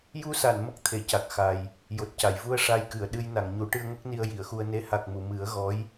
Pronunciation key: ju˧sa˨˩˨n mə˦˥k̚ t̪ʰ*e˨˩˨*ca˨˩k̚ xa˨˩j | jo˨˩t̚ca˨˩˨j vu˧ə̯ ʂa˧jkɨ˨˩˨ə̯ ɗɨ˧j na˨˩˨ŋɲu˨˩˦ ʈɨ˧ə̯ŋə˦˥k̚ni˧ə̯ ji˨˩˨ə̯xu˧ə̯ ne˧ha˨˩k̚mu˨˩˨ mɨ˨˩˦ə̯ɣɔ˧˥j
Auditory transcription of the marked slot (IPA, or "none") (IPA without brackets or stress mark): e˨˩˨